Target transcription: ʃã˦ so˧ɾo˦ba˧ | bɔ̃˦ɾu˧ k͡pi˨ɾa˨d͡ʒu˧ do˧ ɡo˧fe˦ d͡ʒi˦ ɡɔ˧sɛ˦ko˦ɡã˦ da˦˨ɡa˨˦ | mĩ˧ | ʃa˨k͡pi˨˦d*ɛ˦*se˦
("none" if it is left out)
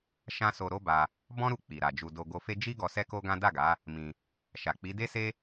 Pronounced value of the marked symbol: e˦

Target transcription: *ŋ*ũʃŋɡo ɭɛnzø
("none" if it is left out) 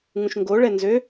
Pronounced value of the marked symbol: ŋ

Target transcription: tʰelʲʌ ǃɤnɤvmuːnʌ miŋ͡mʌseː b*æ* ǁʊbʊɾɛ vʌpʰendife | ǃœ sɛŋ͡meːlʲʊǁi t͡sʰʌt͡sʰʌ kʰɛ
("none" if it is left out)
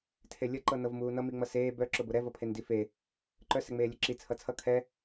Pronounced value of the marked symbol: œ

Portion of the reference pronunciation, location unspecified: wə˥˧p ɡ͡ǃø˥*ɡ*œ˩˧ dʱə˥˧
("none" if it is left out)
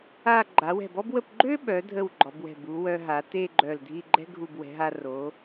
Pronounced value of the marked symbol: ɓ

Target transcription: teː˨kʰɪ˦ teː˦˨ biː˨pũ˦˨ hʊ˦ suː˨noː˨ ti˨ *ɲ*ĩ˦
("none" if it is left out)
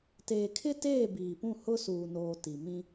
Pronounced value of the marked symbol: m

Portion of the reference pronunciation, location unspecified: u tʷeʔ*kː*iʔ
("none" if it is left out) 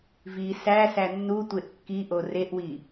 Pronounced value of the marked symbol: kː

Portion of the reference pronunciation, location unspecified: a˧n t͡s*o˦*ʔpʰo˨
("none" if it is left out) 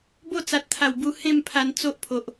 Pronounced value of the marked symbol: o˦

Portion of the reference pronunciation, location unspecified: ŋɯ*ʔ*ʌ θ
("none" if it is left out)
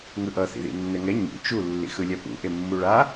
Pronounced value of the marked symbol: ʔ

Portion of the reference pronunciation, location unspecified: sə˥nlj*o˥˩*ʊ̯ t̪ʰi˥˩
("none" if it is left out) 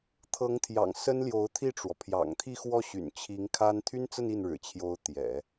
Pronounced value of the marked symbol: o˧˥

